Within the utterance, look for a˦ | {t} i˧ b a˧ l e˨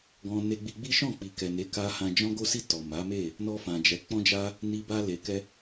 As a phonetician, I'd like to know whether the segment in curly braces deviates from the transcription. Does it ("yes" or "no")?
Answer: yes